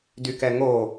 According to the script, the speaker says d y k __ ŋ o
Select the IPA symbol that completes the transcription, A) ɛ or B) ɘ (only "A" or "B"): A